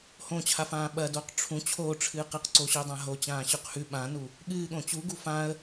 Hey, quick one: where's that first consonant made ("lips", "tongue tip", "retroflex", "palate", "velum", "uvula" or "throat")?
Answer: throat